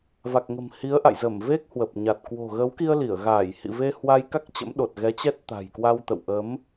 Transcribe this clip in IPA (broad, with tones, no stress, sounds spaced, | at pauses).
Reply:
v a˨˩ k̚ ŋ ə̤˨˩ m h i˨˦ ə̯ ʔ a̰˧˨ j z ə˧˩ m v e˦˥ k̚ h w ə˨˩ p̚ ɲ a˨˩ t̚ k w o̤˨˩ ɣ ə˨˦ w k i˧ ə̯ l i˧˩ ə̯ ɣ aː˧˩ j h ḭ˧˨ v e˧ h w a˧ j k a˦˥ k̚ t͡ɕ ə̰˧˥ m ɗ o˨˩ t̚ ɣ ɛ˨˦ t͡ɕ ɛ˦˥ t̚ t̪ a̤˨˩ j k w a˧ w t̪ ə̰˧˨ w ʔ ə˨˦ m